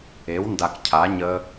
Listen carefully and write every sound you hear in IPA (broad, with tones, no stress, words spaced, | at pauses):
e˩˥wnda˨k cʰa˩˥ ɲə˦˥